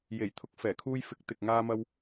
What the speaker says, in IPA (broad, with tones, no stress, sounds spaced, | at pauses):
j e˨˩ j t̪ʰ ʊ˧ k̚ f ɛː˨˩ kʰ uː˧ j f ɪ˨˥ k̚ t̪ ɪ˨ k̚ ŋ aː˧ m ɐ˧ w